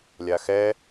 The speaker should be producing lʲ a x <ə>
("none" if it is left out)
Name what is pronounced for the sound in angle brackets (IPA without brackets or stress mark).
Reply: ɛ